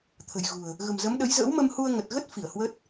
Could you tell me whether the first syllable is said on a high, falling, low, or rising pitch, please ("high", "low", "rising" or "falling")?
low